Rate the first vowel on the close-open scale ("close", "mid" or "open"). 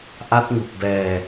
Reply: open